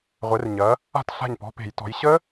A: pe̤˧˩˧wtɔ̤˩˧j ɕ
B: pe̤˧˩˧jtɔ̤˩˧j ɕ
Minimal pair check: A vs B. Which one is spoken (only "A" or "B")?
B